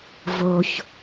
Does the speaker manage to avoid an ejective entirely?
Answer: yes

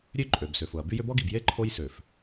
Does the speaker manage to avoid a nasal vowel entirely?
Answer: yes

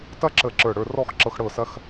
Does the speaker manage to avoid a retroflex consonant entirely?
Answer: no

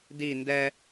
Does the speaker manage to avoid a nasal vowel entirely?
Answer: yes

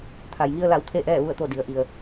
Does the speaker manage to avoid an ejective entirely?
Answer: yes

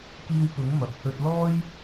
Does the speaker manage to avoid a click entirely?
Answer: yes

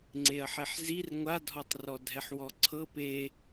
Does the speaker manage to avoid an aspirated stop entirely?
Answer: no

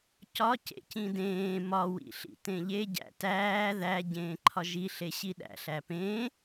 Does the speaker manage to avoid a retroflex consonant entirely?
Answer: yes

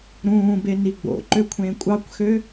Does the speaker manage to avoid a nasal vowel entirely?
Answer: no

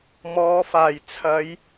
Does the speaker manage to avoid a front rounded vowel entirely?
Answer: yes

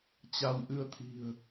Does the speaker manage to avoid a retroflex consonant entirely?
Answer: yes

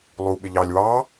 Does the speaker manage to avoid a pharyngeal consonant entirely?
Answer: yes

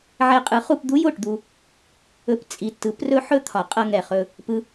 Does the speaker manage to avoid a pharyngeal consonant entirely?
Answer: no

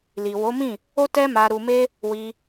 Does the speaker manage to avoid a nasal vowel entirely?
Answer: no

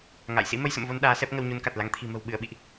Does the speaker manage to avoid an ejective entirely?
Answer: yes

